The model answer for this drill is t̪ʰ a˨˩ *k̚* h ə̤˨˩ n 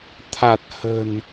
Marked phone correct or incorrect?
incorrect